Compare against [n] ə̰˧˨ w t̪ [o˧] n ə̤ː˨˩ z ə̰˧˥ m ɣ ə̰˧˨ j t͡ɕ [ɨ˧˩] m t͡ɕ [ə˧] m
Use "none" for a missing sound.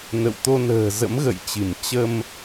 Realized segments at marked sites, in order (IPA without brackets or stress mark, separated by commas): n, o˧, ɨ˧˩, ə˧